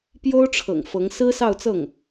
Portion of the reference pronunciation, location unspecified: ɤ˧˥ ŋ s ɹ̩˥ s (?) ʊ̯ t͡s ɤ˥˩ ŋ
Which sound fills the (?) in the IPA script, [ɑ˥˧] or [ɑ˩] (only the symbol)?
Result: ɑ˥˧